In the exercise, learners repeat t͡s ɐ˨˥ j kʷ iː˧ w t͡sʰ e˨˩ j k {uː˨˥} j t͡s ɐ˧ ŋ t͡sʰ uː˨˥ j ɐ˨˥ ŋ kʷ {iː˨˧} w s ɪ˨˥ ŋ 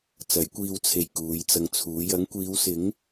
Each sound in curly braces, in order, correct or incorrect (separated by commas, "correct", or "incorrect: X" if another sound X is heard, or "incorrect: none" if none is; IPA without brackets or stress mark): incorrect: uː˨˧, correct